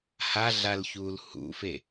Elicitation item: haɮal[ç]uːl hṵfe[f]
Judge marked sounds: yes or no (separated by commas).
yes, no